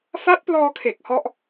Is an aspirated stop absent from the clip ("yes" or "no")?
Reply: no